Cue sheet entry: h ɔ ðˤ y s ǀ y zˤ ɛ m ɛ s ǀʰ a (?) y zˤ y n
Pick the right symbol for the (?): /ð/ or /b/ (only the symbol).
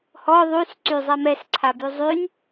b